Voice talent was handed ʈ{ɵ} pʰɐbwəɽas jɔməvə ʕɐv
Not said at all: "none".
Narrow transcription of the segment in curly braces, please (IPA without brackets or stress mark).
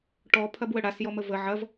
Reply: ɔ